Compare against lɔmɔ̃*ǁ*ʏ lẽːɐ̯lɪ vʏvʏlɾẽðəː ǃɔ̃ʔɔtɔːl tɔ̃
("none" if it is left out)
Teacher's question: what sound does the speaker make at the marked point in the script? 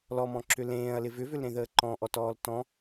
ǁ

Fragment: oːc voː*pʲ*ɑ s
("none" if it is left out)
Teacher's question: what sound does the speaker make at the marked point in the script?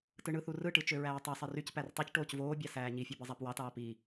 bʲ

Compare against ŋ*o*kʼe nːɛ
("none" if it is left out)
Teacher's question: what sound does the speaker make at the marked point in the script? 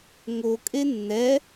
o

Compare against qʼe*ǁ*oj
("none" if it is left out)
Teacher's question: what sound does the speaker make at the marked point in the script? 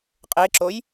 ǁ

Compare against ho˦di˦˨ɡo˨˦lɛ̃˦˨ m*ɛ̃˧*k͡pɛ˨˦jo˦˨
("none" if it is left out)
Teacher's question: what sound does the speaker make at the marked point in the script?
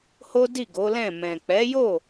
ɛ̃˨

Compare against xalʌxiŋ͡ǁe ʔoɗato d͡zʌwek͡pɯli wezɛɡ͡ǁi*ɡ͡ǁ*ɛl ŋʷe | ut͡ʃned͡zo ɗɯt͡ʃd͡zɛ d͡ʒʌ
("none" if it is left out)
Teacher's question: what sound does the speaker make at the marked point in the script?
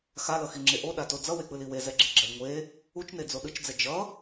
ɡ͡ǁ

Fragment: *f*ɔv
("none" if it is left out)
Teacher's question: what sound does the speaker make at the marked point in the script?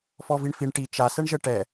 f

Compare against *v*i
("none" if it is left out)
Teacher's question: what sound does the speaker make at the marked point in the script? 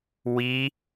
w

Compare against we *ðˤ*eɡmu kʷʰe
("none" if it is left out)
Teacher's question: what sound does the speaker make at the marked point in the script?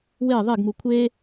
ðˤ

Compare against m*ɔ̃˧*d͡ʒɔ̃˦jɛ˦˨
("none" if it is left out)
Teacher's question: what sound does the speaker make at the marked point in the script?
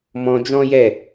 ɔ̃˧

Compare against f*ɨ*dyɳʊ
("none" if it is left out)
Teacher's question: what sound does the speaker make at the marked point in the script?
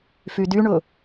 y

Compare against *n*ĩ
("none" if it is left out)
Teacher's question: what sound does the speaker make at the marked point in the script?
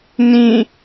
n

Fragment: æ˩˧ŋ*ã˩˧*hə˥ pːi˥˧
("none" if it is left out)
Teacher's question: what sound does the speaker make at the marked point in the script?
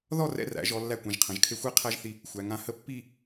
ã˧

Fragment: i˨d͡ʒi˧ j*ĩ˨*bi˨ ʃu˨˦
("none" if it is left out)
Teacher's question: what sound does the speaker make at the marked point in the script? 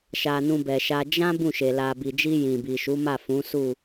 ĩ˨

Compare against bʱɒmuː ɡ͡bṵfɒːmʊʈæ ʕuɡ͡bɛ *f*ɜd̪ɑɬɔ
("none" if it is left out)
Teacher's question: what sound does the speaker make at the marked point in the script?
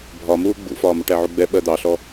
ɓ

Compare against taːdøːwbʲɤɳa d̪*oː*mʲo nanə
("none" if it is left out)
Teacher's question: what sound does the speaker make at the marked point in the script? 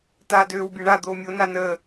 oː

